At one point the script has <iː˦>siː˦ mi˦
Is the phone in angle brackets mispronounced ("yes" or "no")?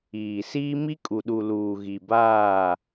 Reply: yes